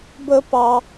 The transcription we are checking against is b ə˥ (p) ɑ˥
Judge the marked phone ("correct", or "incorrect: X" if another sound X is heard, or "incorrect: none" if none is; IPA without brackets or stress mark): correct